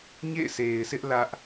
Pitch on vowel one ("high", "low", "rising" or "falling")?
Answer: falling